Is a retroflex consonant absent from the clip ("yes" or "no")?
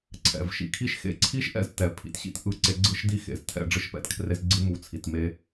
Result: no